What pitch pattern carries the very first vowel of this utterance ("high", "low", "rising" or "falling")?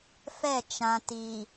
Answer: falling